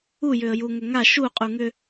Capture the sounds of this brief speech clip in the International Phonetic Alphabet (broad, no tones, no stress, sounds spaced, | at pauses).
u j ʏ ə̯ j u ŋ ʏ ŋ a ʃ u qʼ u ŋ ʏ